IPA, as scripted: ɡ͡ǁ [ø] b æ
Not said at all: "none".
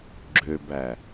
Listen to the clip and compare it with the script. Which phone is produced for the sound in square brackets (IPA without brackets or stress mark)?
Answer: ø